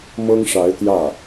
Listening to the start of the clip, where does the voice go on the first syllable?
high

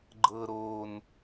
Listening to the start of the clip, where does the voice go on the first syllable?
low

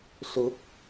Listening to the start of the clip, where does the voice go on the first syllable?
rising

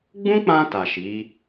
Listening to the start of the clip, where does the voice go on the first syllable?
high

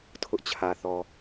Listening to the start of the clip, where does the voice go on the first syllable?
high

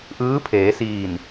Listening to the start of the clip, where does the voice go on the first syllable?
rising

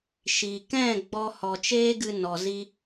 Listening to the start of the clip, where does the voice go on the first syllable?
low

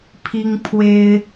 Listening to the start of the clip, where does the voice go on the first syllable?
high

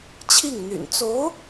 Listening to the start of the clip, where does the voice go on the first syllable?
falling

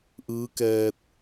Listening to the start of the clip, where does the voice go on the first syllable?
rising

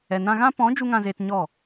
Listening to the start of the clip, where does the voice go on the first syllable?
low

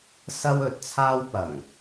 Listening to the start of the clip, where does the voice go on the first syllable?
high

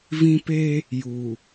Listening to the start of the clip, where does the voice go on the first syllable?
high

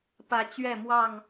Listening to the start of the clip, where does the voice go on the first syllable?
rising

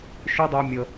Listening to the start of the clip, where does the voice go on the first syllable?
high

